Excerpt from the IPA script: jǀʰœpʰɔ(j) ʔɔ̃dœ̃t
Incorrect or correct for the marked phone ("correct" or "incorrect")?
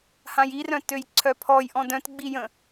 correct